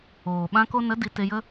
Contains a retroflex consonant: no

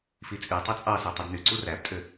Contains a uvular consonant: no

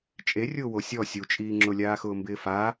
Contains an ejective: yes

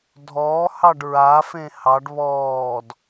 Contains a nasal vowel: yes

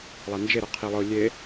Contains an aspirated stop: yes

